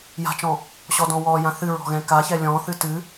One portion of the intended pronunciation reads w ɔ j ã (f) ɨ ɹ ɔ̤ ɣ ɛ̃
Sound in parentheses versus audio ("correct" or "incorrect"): incorrect